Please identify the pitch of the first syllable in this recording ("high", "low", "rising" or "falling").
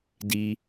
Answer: high